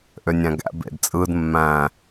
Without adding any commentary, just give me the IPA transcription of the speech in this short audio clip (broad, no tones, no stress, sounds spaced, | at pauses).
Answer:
ʔ ø nʲ æ̃ ɡ æ̰ b ḛ d t͡sʼ ɯ d mː æ̃